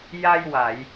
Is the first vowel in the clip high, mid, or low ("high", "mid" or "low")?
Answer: low